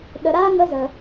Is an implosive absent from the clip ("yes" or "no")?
no